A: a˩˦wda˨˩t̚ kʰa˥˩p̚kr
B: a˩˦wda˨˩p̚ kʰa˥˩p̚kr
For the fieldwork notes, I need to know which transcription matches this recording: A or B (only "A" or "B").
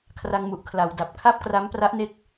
B